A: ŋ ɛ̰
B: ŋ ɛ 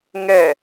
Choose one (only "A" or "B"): B